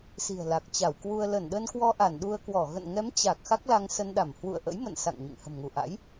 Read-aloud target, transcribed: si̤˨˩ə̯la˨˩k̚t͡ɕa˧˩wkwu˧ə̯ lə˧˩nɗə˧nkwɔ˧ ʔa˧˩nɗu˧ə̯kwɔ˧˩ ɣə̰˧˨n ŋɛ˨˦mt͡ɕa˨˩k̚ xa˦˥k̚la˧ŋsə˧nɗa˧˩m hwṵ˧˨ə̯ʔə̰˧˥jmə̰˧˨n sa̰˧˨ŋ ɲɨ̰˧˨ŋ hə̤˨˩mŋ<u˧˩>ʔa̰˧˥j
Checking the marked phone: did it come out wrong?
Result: no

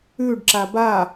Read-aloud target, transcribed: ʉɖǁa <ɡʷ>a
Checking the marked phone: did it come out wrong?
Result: yes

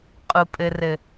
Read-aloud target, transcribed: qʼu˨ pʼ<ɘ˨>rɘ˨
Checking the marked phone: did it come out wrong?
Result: no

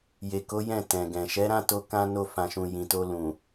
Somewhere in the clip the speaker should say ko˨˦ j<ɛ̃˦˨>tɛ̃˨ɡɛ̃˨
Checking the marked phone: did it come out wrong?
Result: no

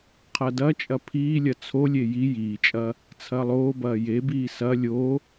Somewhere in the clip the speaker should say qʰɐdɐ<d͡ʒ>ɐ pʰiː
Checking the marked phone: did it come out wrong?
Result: yes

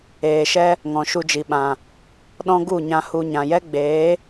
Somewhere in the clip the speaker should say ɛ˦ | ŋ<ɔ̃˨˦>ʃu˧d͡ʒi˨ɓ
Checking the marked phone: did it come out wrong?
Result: yes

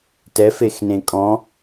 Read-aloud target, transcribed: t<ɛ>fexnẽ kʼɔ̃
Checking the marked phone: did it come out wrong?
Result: no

